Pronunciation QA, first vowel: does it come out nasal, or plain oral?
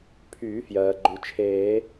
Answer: oral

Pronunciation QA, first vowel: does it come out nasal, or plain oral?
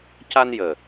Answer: oral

